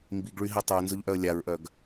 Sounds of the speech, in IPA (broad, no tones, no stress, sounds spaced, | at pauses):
m b i ɡ ɭ y ɦ i tˤ œ ə̯ n z ʊ ʎ ʔ œ ə̯ lʲ a ɹ ʔ œ ɡ